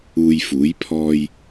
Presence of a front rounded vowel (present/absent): absent